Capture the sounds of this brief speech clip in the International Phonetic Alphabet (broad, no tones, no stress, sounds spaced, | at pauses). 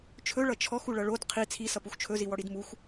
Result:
t͡ʃʰ ɵ ɭ ʌ t͡ʃʰ ɔ x u ɭ ʌ ɭ o d qʰ i t͡sʰ i s ʌ p u x t͡ʃʰ ɵ z i w ɔ ɽ i d m u x